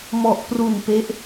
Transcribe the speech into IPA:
m ɔ˨˩ ʔ p r u˨˩ n p e˦˥ ʔ

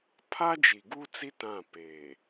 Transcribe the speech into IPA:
pʰ a˦ d͡ʒ i˨ ɡ uː˦ t͡s i˦ t ã˦˨ p eː˨

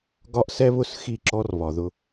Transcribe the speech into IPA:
ɡ ɒ˦ ʔ s ɛ˦ β ʊ˦˨ s x i˦˨ ǁ ɔ˦ r β ɒ˨ ð ʊ˦

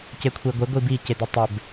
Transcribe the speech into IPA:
c e kʷʰ e ɡʷ e ɡʷ i b i c e d ɪ tˤ ɪ b

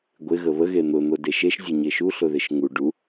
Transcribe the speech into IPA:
ɡʷ ɪ ɣ ə β ə ɣ e n̪ ʊ n̪ o d e ʃ e ʃ zʲ ʊ ɲ e ʃ u ɬ ʊ ð ɪ ʃ ŋ u ɖ u

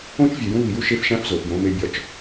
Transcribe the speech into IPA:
õ˥ t͡ʃ vʲ e˩˧ j ũ˥ β i˩˧ j u˥ ʃ e˧˥ f ʃ æ̃˧˥ f z o˩˧ f j õ˧˥ m e˧˥ bʲ ɒ˧ t͡ʃ

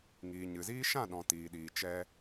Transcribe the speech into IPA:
ŋ iː˨ ɲ ɨ˨ z iː˦ ʃ ã˦˨ ɗ ɔ̃˨ t iː˨ ɗ iː˨ t͡ʃ ɛ˧

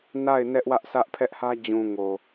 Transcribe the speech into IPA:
n a˦˨ ɪ̯ n ɛ˦ ʔ w ä˦ ʔ sʰ ä˦ ʔ pʰ ɛ˦ ʔ h ä˦ d͡ʑ ũ˨ ŋ o˨

